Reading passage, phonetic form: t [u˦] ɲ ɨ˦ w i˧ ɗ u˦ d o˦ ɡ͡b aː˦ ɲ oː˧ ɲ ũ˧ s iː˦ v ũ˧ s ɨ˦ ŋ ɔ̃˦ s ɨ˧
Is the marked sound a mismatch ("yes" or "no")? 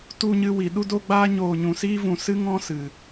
no